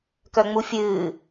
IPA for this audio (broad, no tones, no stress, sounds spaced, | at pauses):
k œ ŋ͡m u fʲ ɨː